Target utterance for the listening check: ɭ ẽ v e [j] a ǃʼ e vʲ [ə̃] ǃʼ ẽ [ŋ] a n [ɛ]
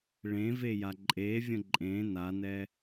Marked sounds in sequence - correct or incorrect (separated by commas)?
correct, correct, incorrect, correct